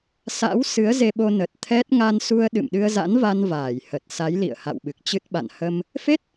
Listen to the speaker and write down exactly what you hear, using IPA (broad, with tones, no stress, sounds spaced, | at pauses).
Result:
s a̰˧˥ w s ɨ˨˦ ə̯ z e˧ ɓ o˧ n ə˨˩ t̚ t̪ʰ ɛ˦˥ t̚ ŋ a˧ n s u˧ ə̯ ɗ ɨ̰˧˨ m ɗ ɨ˧ ə̯ z a̰˧˥ n v a˧ n v aː˧˩ j h ə˨˩ t̚ s a˨˦ j l ḭ˧˨ ə̯ h a̰˧˨ w ɓ ɨ˨˩ k̚ t͡ɕ ɨ˦˥ t̚ ɓ a̰˧˨ n h ə˧ m | f e˦˥ t̚